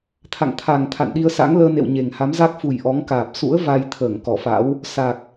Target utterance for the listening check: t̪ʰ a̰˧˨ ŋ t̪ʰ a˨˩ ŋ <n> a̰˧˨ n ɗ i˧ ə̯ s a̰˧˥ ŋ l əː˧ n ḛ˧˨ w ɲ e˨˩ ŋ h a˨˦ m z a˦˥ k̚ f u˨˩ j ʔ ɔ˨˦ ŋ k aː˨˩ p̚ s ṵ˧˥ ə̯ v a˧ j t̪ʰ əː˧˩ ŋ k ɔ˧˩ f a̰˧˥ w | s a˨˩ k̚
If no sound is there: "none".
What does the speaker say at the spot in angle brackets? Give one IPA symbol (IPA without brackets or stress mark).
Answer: t̪ʰ